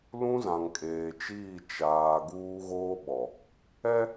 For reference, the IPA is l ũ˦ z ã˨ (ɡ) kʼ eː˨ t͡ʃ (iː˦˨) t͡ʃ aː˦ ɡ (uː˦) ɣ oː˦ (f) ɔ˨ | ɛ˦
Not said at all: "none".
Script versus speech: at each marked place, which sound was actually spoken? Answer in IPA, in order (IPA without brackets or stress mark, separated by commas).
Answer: ŋ, iː˦˨, uː˦, ɓ